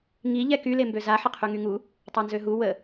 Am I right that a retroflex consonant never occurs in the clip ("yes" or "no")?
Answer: yes